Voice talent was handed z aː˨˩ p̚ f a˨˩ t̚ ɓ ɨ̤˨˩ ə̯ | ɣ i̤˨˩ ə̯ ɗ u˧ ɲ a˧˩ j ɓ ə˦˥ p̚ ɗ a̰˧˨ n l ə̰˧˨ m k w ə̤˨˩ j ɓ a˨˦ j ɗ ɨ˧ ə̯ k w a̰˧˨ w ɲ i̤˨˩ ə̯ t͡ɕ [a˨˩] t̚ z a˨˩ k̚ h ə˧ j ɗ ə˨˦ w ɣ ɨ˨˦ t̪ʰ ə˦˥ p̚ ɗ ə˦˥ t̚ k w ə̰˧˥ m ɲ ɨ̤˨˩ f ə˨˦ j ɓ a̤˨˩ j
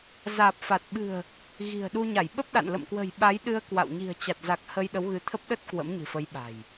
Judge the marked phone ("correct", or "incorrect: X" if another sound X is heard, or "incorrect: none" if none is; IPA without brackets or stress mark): correct